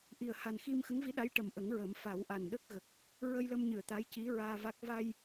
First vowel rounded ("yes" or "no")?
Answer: no